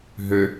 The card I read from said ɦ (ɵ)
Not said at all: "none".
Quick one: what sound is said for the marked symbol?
ø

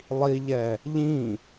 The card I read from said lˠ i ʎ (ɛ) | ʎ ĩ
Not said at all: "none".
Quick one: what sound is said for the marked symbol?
ɛ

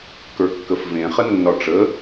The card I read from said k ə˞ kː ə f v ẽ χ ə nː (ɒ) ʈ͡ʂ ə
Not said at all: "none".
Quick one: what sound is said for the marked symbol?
ɒ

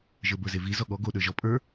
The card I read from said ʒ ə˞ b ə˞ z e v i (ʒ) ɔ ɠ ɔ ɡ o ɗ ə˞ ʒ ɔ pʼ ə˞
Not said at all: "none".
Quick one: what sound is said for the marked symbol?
z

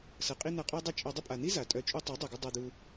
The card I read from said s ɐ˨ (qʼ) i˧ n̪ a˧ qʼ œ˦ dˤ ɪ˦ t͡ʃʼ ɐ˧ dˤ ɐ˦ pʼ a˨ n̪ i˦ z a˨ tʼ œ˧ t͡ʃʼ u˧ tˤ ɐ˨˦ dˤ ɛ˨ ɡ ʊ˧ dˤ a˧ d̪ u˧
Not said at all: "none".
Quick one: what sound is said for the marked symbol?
qʼ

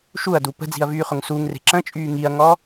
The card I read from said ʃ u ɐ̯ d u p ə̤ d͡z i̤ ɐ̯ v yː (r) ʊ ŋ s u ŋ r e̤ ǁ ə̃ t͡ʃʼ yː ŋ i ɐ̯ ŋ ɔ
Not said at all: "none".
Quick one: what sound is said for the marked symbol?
χ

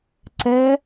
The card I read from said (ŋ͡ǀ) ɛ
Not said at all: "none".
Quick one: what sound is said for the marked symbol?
ǀ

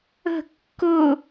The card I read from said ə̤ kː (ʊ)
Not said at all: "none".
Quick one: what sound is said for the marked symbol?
ʊ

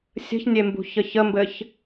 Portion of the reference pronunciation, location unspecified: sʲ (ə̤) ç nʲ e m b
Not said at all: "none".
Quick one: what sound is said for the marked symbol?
ə̤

